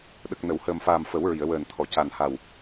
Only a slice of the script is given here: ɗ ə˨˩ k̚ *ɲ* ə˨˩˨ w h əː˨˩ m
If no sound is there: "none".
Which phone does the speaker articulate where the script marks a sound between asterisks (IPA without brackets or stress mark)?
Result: n